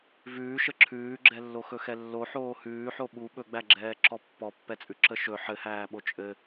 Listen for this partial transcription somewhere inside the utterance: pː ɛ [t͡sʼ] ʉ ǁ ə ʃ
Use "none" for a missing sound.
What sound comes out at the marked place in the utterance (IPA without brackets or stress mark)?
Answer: t͡sʼ